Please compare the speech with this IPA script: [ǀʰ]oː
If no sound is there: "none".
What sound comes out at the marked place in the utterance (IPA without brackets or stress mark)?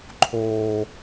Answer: ǃʰ